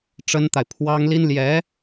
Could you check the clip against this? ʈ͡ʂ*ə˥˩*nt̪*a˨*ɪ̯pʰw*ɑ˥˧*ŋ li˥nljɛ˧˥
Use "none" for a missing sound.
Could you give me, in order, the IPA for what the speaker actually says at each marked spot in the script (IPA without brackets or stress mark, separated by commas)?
ə˥, a˨, ɑ˥